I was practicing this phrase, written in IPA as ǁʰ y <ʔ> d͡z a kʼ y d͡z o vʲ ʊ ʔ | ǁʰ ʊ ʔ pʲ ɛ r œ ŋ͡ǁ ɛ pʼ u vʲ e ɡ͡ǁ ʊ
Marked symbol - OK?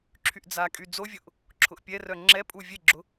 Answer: yes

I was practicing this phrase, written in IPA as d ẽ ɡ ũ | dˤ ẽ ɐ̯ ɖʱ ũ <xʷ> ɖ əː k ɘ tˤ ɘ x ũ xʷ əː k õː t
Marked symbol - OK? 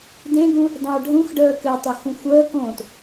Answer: no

